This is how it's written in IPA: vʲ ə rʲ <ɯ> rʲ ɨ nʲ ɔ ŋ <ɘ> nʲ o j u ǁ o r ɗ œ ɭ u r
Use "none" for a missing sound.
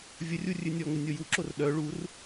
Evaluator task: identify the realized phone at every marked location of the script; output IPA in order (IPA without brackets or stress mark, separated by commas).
u, ɘ